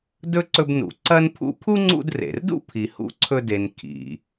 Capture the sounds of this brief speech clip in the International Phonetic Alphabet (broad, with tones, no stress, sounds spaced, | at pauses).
d ɵ˥ ǀ ɵ˦ b n ṵ˨ ǀ ɐ˥ n pʰ ṵ˥ pʰ u˥ ŋ͡ǀ ṵ˦ d r ḛ˩ r d ṵ˥ pʰ i˨ h ṵ˥ ǀʰ ɵ˦ d e˨ n kʰ ḭ˩